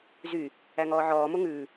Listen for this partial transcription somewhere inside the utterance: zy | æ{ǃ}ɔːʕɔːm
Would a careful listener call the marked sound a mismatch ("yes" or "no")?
yes